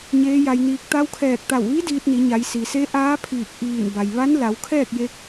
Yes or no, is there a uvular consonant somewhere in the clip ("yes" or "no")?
no